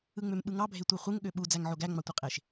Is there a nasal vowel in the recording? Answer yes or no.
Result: no